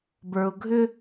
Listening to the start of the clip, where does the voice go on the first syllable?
low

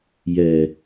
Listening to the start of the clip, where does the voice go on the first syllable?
low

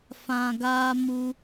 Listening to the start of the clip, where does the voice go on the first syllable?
low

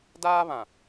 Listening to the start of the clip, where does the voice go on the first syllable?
high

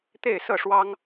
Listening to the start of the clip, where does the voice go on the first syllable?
falling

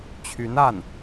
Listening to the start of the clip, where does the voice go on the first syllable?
rising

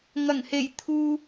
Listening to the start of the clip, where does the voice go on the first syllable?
low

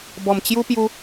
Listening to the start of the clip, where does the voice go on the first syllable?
low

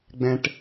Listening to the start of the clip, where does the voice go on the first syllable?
low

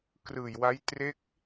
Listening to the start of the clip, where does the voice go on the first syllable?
low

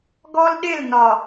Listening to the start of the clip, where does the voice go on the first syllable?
high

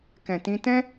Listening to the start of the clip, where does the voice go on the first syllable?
low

